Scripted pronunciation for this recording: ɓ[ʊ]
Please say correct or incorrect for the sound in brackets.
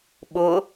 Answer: correct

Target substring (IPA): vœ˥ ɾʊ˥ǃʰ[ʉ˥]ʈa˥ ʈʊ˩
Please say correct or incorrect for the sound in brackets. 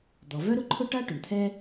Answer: incorrect: ʊ˥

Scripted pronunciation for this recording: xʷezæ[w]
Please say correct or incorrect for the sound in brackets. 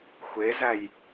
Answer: incorrect: j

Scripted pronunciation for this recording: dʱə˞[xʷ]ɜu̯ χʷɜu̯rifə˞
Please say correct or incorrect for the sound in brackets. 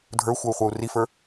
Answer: correct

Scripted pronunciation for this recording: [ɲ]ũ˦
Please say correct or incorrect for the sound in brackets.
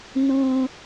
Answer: incorrect: n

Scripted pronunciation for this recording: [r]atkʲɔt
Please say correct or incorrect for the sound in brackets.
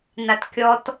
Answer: incorrect: n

